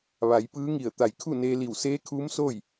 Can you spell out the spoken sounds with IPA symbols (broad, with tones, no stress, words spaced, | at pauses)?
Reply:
ʋa˩˧jpɯː˧˥ŋi˧˩ə̯ t̪a˧˩jkʰu˥˨ neː˧li˧˩w seː˧˥kʰuː˧˥msoː˥˨j